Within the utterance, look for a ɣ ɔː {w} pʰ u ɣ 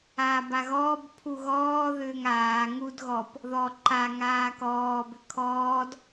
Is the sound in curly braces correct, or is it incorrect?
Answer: incorrect